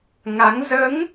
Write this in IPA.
ŋa˨˦ŋ zəː˨˦ŋ

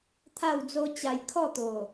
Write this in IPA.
t̪ʰa˥˧wd͡zo˦ t͡ɕa˧jkʰɔ˥˧t̪o˨˩

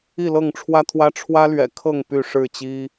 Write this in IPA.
i˥˨lɤ˥˨ŋʈ͡ʂʰwä˦t̪ʰwä˦ ʈ͡ʂʰwä˦lɥɛ̰˨˩kʰɤ˥˨ŋ py˥˨ʂɻ̩˥˨t͡ɕi˦

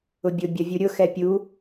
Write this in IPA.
ʊbʲʊ bʲʌvʲuɾʲʊ xɛpʲu

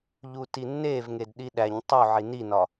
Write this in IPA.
ʎutinːevŋed ɗiɗæɲ tˤu ʕininɒ

